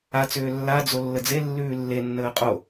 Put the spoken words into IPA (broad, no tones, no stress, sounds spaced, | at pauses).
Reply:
a t͡s ʏː lː a d͡z o lː ə d͡z e lː ʉː lː e nː əː qʼ o